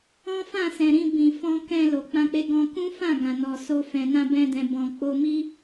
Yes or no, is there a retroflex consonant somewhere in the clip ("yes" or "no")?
no